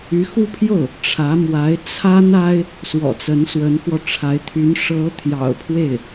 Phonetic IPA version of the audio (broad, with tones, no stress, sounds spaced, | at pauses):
y˧˥ x u˥ pʰ j o˥˩ ʊ̯ | ʈ͡ʂʰ ä˧˥ m w a˧˥ ɪ̯ t͡sʰ a˥ n a˥ ɪ̯ | s w ɔ̰˨˩ t͡s ə˧˥ n s w ə˧˥ n x w ɔ˧ ʈ͡ʂʰ a˧˥ ɪ̯ t̪ʰ y˧˥ n ʂ ɤ˧˥ t̪ʰ j ɑ̰˨˩ ʊ̯ pʰ w e˥˩ ɪ̯